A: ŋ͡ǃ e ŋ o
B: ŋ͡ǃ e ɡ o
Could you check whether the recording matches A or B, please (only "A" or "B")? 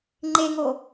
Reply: A